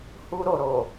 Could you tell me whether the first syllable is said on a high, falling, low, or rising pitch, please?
high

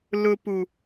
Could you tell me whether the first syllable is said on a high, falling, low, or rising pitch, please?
high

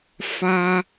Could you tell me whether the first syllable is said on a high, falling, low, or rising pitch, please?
low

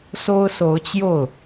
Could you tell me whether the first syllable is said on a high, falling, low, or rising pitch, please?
high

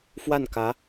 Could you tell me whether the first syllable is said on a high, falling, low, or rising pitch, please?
falling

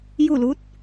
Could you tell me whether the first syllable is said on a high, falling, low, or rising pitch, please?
falling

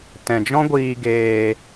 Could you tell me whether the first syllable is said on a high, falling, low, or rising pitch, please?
low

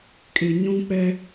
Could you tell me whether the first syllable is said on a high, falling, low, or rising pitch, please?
low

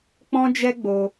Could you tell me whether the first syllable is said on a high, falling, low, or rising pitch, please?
high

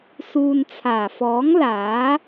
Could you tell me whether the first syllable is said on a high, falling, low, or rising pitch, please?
low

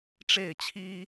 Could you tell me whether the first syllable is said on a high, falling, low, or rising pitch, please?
falling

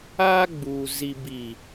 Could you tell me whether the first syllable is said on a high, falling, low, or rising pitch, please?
high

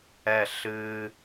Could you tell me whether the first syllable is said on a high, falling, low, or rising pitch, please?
falling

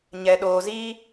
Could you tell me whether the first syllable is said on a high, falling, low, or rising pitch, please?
low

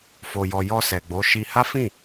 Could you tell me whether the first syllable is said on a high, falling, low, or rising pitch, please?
low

